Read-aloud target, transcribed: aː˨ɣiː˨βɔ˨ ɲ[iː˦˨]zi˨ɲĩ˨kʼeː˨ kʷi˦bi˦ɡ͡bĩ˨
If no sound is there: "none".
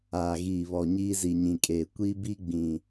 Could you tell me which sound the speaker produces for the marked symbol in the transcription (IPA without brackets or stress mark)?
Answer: iː˦